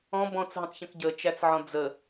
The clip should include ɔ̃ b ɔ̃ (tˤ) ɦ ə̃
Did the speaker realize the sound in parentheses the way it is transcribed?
no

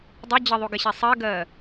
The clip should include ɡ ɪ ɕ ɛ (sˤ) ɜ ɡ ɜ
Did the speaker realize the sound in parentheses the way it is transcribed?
yes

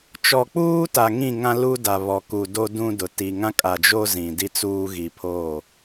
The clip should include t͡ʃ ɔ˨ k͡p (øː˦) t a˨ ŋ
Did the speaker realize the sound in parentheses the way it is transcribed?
no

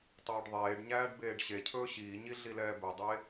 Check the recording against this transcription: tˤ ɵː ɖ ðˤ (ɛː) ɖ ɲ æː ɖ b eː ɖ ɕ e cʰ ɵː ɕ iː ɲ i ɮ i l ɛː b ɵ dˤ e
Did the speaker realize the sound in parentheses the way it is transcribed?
no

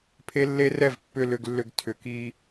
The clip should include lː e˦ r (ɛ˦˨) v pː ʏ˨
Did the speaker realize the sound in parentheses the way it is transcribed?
yes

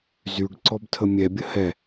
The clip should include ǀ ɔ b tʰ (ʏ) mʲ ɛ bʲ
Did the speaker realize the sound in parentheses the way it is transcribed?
no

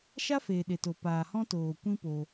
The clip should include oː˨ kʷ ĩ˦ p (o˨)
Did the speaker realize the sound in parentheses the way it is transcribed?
no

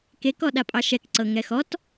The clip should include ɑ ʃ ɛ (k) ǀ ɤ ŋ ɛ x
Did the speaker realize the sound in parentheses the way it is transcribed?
yes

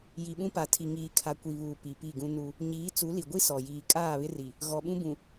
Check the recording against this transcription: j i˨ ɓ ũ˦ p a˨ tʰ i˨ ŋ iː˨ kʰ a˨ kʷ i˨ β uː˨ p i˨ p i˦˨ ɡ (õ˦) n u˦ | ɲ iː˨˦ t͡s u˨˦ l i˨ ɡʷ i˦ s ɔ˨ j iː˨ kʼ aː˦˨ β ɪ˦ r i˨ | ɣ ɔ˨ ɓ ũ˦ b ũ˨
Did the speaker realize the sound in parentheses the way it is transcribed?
no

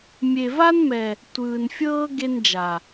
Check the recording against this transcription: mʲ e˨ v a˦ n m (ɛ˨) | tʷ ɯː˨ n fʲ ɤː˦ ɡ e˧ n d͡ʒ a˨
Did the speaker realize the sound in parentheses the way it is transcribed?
yes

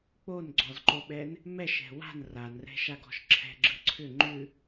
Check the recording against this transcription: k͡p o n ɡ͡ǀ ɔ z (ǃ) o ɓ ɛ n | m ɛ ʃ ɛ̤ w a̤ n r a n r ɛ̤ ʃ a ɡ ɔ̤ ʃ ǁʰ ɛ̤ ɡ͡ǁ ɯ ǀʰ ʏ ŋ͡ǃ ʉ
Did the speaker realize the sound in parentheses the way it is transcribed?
yes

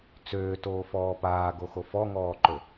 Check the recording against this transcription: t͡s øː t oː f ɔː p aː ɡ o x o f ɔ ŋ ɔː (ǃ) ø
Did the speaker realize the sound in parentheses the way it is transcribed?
yes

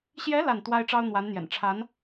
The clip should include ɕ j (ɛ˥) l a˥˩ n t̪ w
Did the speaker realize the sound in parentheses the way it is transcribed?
no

